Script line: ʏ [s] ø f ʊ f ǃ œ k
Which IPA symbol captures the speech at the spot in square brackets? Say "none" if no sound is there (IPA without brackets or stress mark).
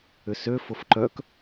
s